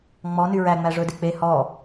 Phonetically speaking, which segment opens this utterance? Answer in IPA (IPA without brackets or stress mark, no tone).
ŋ͡m